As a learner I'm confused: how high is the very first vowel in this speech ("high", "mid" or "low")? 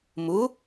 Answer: high